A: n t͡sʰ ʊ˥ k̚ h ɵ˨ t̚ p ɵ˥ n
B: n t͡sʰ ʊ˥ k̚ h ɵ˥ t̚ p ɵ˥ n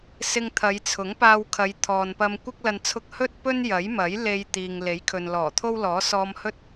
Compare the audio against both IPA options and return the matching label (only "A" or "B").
B